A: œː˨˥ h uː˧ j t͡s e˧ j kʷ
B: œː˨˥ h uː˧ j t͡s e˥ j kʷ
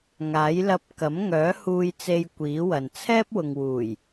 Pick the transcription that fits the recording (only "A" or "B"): A